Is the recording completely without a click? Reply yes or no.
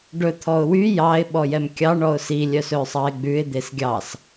yes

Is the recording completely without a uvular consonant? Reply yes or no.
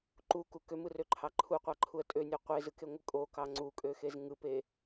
no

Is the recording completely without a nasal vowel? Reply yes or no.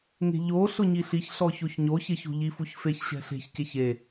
yes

